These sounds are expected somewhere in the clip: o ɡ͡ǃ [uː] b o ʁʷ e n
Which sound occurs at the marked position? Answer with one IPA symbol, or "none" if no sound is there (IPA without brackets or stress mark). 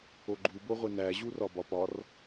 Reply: u